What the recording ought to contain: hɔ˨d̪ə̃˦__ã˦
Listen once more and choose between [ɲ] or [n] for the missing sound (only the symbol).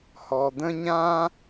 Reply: ɲ